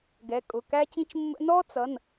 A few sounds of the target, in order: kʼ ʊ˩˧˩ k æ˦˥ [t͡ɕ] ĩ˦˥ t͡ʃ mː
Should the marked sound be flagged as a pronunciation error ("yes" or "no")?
no